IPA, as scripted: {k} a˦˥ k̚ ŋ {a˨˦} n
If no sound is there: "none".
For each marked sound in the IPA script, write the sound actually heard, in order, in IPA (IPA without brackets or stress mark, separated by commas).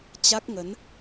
t͡ɕ, ə˨˦